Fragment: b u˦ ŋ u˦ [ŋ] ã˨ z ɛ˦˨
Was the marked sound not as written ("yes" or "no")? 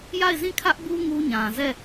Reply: yes